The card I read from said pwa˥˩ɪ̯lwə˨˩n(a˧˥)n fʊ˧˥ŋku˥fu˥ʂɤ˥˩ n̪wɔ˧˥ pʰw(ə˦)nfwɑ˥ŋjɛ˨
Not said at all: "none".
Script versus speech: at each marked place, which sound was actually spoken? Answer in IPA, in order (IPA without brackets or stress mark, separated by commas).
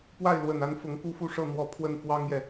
a˧˥, ə˥˩